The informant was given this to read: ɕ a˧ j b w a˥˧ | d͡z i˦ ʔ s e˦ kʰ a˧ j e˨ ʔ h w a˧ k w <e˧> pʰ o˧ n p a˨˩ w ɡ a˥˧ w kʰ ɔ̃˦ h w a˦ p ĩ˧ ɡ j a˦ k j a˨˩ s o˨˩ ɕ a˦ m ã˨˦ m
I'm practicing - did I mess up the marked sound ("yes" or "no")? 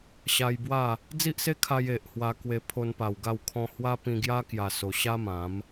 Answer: no